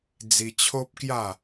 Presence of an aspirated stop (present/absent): present